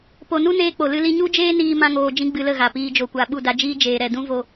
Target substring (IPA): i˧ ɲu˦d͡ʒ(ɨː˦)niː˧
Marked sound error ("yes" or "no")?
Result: yes